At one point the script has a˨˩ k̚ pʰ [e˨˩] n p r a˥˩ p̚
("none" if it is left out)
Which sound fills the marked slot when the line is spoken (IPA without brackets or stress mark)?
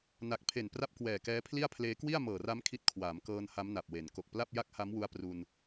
e˨˩